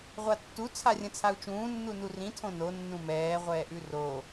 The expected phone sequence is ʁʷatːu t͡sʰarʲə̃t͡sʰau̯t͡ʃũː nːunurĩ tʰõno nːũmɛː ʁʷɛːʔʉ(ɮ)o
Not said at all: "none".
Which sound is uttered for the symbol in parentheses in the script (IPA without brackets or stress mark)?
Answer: r